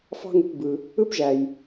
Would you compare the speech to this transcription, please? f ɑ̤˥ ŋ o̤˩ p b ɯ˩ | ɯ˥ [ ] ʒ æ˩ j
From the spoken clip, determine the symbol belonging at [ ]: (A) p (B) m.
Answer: A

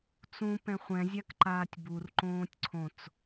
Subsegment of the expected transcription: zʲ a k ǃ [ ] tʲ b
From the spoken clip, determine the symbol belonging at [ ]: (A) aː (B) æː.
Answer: A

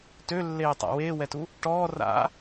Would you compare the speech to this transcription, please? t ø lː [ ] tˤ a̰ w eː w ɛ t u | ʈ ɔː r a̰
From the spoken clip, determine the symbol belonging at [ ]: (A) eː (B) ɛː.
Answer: A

